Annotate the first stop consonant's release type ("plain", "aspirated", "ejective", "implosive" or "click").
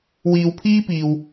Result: aspirated